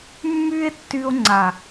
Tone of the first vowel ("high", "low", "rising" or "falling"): high